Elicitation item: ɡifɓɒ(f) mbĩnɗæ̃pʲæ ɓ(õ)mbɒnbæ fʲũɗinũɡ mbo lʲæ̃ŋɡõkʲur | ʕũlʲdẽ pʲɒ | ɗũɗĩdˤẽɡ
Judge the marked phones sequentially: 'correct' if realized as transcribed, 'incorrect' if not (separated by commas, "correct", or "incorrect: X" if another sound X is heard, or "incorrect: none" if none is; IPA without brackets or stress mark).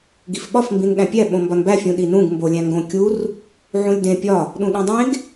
correct, correct